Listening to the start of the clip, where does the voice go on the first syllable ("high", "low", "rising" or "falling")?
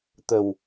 low